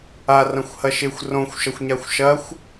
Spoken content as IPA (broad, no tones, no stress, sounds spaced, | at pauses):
a r ɐ̃ xʷ h ɐ ʃ e xʷ r õ xʷ ʃ ɐ xʷ ɲ a xʷ ʃ ɐ xʷ